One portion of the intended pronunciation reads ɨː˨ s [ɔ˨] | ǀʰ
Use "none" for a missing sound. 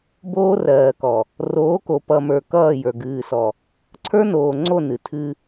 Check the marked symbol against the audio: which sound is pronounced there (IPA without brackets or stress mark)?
ɔ˨